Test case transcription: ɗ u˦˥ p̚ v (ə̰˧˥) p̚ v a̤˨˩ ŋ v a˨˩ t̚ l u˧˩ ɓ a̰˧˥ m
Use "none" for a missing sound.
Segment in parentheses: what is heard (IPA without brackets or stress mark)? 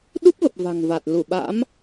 ə˨˩